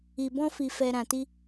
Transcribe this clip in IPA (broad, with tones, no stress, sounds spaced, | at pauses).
i˨ b ɔ̃˧ f i˨ f ɛ˨ ɾ ã˨ t i˧